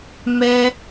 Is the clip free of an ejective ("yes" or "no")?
yes